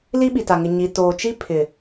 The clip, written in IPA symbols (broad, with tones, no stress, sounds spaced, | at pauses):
l i˦ ɓ i˨ t a˨ ŋ ɪ˨ ɲ i˨ t oː˨ t͡ʃ i˦ pʰ ɪ˨